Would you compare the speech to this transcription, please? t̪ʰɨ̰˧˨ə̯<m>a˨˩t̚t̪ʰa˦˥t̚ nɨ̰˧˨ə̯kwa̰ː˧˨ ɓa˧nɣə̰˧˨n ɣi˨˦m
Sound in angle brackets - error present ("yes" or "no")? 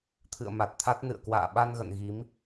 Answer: no